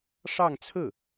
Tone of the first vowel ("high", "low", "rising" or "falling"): falling